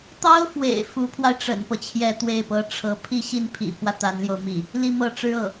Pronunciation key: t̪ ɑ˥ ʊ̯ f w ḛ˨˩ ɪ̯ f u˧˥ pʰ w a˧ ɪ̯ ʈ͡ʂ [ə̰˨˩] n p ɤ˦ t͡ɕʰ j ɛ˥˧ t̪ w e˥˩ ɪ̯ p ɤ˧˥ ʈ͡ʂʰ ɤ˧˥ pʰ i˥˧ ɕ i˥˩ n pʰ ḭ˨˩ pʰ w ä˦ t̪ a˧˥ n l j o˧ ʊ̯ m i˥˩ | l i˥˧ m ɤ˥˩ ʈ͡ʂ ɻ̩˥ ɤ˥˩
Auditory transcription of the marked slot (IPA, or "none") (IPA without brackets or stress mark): ə̰˨˩